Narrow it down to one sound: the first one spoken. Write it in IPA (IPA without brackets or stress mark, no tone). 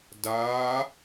d